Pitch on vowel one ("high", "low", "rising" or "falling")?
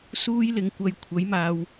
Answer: high